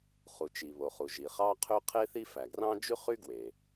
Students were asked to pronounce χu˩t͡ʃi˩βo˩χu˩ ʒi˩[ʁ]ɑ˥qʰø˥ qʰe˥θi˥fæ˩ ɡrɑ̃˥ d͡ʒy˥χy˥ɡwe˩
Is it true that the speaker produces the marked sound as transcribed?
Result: no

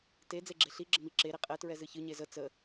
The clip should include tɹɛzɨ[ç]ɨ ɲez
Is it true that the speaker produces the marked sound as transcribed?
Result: yes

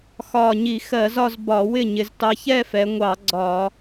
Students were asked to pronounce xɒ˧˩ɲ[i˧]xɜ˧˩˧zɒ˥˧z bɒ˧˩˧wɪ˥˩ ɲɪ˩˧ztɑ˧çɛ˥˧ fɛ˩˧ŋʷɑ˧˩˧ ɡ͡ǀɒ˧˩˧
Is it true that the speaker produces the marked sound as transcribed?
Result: no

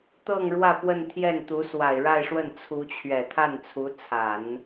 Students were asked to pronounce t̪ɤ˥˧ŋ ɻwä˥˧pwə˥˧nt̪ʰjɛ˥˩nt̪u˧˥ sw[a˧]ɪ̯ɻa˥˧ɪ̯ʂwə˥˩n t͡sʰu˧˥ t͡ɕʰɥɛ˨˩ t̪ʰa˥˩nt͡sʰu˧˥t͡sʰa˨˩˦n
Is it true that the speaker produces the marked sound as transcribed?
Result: no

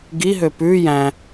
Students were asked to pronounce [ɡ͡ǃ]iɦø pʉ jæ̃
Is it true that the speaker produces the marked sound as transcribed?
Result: no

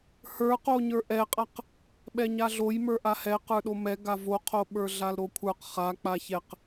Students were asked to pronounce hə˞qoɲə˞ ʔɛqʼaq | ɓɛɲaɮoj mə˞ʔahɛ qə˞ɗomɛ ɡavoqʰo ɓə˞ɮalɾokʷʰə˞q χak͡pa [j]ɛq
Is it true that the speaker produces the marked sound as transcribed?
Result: no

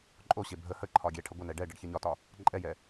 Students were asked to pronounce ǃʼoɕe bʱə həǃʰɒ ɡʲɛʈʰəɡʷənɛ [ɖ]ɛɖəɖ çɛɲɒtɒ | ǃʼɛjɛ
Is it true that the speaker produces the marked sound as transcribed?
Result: yes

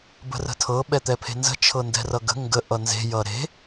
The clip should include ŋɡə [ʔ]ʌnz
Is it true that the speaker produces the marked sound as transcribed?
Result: yes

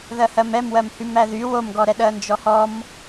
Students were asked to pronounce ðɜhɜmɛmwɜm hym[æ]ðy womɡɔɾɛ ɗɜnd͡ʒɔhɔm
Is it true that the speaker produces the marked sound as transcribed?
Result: yes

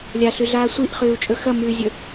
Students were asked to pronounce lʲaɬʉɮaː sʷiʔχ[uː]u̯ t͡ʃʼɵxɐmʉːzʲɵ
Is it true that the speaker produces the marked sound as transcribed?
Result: no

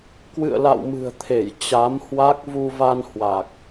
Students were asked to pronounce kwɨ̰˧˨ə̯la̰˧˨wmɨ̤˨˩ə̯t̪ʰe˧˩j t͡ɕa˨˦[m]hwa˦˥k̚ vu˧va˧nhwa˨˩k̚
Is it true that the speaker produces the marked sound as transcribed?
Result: yes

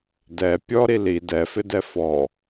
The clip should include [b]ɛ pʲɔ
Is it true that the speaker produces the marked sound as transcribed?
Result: no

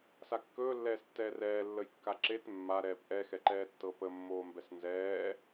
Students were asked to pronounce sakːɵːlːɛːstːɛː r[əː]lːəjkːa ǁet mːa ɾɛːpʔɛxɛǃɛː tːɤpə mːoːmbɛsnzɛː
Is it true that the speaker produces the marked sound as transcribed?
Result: no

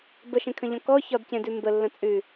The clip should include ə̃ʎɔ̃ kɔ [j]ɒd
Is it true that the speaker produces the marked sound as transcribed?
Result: no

